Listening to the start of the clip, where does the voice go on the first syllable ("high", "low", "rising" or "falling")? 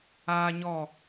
high